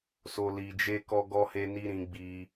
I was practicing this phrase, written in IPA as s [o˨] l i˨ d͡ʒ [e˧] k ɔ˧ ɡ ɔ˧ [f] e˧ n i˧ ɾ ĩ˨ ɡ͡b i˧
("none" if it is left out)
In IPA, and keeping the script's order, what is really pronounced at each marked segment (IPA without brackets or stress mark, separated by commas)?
o˨, e˧, h